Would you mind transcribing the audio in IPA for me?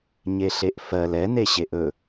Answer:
ɲeɬeʔfɜl ɛneɕeʔ ɵ

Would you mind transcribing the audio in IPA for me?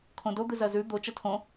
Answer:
kʰõdo d̪ɨzɐzʉ d̪o t͡ʃɐtʰõ

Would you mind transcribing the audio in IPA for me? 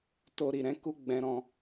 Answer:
to˧ ɾi˨ɾɛ̃˨˦ku˧ ɡ͡bɛ̃˧ɾɔ̃˧

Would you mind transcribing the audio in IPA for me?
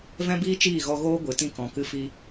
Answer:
vɛ̃˦biː˦ t͡ʃiː˦˨ɣɔ˧ɣoː˦ ɡʷɨ˨ tĩ˦kɔ̃˨kɨ˦ fi˦

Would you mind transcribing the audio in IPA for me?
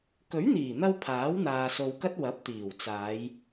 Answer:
kɵ˨˥ɥn̪iː˨˩n̪ɐ˧w pʰaː˨˥wn̪aː˨so˨wkɐ˥t̚ wɐ˨˥p̚t̪iː˨˩wt͡saː˨˧j

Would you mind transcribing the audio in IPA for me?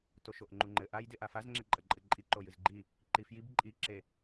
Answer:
toʃoʔŋ͡ǃuŋ͡ǃɘ ʔajdeʔa fazŋ͡ǁeǃʼɐ ǃʼɘǃʼi ǃojɨzɡ͡ǃi | ǃifjib ǃʼiǁe

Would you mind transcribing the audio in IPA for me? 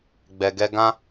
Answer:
ɡ͡bɛ˨ɡɛ˧ ɡã˦

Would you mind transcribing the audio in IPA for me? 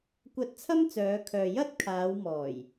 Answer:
kʷɐ˧t̚ t͡sʰɐ˥mt͡sœː˨˧kʰœː˨ jɐ˥t̚ kʰaː˨˧wmɔː˨˩j

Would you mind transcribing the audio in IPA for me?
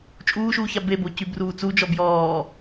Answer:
t͡ʃʼuːʃuːça bebo cybruːt͡sud͡ʒɔ bjɔː

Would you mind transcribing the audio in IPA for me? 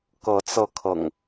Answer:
kɤ˨˦t͡sɤ˧kʰɤ̰˨˩ŋ

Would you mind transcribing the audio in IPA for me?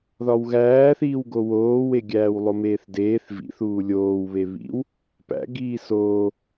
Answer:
ðɒwɣæːθiːwɡo woːweɡʲæːw lˠomeːθdeːθ vḭθuː lʲoːwβe βḭw | pæ̰ ɡiːsoː

